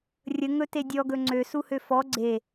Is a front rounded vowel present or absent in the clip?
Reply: present